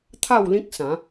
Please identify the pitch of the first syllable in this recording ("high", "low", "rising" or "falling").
falling